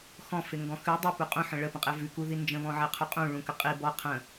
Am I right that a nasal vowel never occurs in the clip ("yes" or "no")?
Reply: no